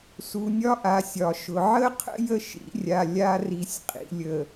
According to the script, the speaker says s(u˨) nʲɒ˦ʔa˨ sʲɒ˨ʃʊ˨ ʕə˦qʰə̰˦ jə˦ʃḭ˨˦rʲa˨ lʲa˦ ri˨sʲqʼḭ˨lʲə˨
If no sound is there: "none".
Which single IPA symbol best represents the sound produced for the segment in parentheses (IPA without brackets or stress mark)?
u˨